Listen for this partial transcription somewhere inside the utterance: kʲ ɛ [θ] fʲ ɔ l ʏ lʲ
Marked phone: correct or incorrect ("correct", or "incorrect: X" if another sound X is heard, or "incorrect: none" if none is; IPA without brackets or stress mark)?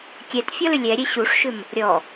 incorrect: t